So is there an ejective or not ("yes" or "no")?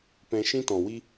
no